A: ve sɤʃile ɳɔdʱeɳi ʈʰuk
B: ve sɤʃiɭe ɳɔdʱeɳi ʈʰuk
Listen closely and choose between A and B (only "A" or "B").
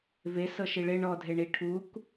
B